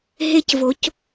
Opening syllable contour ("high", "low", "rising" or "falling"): high